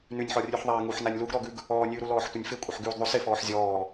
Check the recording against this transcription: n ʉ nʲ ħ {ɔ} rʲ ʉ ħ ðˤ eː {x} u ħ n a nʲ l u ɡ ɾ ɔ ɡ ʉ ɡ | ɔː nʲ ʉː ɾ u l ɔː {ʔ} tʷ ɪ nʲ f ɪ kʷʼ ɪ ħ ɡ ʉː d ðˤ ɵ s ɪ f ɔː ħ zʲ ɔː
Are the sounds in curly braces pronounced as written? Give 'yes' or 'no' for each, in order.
yes, no, no

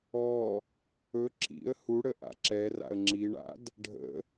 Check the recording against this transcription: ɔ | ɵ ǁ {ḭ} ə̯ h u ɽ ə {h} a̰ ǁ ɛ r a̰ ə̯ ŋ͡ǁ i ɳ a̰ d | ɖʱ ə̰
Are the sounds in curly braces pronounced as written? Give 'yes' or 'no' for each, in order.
yes, no

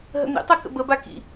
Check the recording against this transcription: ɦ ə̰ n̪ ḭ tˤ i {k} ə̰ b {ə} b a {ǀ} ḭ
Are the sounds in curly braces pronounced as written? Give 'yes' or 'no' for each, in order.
yes, yes, no

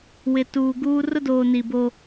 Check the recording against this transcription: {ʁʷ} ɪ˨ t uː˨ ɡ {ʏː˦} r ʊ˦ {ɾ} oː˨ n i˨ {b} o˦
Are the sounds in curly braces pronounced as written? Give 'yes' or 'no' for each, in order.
no, no, no, yes

